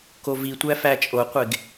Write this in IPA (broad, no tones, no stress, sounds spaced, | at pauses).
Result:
k o v i tʷ æ f æ t͡ʃʼ o qʷ e ɡ